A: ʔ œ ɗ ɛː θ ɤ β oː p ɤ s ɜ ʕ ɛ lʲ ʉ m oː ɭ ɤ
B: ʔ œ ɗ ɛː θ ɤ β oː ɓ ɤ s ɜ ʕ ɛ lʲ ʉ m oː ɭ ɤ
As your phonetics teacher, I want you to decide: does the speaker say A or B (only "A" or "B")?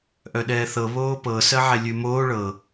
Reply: A